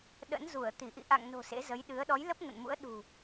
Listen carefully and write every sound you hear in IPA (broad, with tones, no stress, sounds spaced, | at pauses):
ɗ ə̰˧˥ n z u˧˩ ə̯ t̪ i˧˩ ʔ ḭ˧˨ ʔ a̰˧˨ ŋ n o̤˨˩ s ḛ˧˥ z ə˨˦ j ɗ ɨ˨˦ ə̯ ɗ ɔ˨˦ j l ə˦˥ p̚ ŋ ə̰˧˨ n m ṵ˧˥ ə̯ ɗ ṳ˨˩